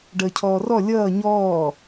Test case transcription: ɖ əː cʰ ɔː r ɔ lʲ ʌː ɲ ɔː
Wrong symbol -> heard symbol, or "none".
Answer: none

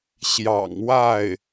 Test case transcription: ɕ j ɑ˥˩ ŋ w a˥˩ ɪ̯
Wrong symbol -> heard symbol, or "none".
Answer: ɑ˥˩ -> ɑ̰˨˩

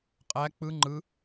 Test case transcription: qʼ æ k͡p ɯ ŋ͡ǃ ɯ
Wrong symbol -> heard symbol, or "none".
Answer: none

